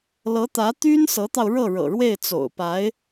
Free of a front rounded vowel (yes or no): no